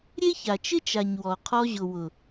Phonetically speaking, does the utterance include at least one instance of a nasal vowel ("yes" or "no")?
no